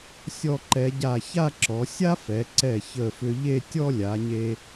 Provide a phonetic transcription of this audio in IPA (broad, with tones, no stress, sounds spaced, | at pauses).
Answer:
sʲ ɔ˧˩ ǃ ɛ˩˧ ɟ a˧˩ ç a˥˧ ǁ ɔ˩˧ sʲ a˥ f ɛ˩˧ ǀ ɛ˧˩ ç ə˧˩ f ʏ˧ ʎ e˥˧ tʲ ɔ˥ lʲ a˩˧ ɲ e˧